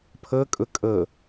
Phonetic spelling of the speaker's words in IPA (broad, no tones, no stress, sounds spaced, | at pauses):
pʰ ɤ kʼ ʊ kʼ ɤ